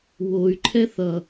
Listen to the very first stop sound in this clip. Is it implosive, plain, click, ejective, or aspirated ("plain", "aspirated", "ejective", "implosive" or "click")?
click